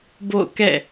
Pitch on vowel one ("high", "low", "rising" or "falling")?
falling